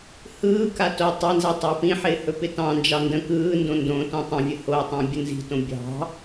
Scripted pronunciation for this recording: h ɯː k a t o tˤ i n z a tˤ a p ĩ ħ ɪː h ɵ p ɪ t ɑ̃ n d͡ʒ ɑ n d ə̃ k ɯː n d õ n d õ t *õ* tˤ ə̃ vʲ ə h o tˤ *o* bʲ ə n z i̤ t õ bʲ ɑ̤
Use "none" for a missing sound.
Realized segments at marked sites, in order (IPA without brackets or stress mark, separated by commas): õ, õ